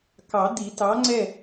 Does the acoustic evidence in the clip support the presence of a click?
yes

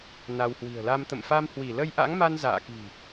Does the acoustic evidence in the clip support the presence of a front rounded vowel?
no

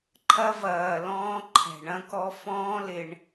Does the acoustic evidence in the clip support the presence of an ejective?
no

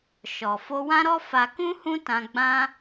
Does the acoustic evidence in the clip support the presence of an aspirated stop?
no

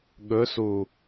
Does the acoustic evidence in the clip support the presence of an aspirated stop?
no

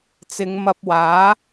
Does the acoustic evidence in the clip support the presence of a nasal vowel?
no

